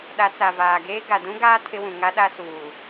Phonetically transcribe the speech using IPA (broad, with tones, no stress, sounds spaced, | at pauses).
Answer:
ɗ a˨˦ t͡s a˨ v aː˨ ɡ eː˦ ɡ a˨ d ũ˦ ɡ aː˦ tʰ ɪ˦ w ũ˨ ŋ a˦ ɗ a˦ s uː˨